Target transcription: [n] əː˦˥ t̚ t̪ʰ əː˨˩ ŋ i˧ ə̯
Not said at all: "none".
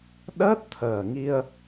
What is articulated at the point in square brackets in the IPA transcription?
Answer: ɗ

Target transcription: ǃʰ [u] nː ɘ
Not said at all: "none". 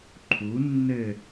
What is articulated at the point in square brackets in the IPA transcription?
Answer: u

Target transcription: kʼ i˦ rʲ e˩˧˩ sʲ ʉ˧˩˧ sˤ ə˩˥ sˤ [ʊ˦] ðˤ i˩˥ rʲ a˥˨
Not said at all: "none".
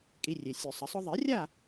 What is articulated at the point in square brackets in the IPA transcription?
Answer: ʊ˦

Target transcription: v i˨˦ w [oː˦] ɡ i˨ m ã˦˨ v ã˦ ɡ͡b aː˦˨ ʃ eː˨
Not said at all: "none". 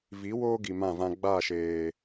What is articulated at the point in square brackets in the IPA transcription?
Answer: oː˦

